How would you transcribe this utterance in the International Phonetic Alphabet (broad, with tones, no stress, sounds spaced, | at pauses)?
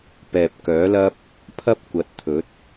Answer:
p ɛː˨ p̚ k œː˨˥ l ɐ˥ p̚ | pʰ ɐ˥ p̚ kʷ ɐ˨˥ t̚ t̪ʰ ɵ˨˥ t̚